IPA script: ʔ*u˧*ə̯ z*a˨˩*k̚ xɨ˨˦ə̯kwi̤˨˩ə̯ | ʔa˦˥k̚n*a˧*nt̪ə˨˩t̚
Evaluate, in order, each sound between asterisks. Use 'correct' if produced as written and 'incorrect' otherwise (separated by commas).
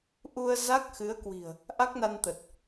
correct, incorrect, correct